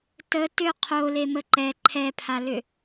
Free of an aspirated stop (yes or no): no